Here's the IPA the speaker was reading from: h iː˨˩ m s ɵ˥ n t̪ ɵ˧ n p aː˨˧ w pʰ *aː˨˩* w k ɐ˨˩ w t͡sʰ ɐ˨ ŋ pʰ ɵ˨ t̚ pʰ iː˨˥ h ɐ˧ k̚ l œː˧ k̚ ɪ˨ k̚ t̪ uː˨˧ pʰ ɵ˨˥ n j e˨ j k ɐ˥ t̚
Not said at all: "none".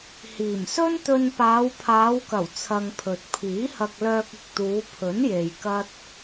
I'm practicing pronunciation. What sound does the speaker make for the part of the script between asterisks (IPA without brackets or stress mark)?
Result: aː˨˧